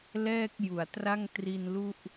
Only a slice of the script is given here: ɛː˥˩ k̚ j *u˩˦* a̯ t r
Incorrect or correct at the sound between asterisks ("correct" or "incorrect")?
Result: correct